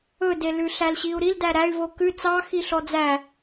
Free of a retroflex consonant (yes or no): yes